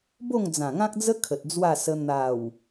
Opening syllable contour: falling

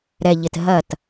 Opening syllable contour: low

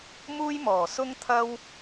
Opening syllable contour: high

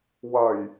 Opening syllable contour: low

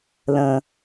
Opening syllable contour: low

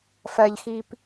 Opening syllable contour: low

